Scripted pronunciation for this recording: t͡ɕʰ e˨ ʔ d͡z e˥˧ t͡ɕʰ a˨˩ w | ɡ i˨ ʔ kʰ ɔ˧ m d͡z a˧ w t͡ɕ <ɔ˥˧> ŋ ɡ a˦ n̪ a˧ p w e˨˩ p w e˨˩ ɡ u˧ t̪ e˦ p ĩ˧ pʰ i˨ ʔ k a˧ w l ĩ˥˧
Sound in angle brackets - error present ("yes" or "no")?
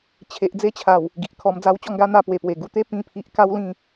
no